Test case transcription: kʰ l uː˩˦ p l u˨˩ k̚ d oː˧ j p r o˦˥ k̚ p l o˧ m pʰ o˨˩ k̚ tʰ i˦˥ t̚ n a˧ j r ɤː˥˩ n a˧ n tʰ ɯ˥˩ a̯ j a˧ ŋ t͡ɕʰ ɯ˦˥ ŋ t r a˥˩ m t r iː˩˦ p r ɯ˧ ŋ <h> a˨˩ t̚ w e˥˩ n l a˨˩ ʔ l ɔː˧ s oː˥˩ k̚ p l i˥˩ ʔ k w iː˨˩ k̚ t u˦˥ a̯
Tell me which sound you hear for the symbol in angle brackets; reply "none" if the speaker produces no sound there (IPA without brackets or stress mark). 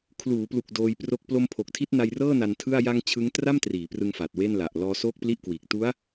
f